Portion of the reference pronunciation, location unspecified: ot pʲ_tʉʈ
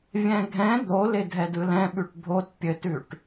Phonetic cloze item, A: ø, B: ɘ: B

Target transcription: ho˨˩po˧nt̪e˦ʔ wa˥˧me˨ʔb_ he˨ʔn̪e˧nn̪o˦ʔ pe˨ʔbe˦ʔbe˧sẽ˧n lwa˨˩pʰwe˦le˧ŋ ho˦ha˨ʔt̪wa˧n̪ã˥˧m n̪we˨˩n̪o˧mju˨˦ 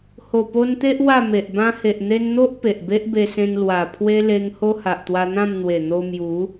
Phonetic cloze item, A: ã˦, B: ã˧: A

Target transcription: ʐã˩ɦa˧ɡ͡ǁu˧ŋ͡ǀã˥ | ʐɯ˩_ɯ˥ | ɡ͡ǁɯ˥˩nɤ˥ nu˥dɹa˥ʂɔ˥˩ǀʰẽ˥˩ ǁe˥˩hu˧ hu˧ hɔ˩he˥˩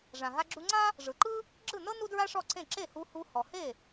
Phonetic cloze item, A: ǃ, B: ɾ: A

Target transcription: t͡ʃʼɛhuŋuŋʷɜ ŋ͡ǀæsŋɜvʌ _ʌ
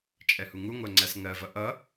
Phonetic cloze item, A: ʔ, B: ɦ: A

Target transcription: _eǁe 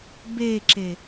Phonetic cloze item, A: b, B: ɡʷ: A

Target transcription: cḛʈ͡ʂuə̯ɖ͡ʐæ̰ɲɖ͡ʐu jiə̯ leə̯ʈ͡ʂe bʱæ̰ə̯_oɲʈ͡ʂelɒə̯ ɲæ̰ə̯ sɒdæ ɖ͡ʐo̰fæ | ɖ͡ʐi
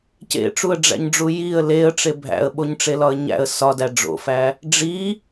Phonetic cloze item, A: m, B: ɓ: B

